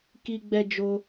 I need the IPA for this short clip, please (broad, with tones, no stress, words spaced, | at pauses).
ki˦ɡ͡bɛ˦d͡ʒo˦